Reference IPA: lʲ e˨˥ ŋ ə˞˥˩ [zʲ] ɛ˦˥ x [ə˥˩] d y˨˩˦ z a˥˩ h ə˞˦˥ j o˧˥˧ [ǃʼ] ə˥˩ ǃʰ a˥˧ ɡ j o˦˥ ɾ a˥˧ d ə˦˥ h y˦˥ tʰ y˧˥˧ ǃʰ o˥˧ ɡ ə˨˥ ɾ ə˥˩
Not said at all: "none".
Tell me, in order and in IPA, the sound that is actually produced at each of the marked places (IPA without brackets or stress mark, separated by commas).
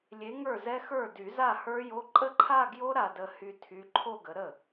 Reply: z, ə˞˥˩, ǃʼ